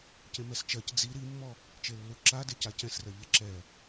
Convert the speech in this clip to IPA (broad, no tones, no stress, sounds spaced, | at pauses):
c ẽ m ɛ s t͡ʃ ɜ c d͡z i ɾ i mː ɔ | t͡ʃ e lː u ǁ a d e c a c ɛ̃ s r ɜ ʎ e ǁ ɛ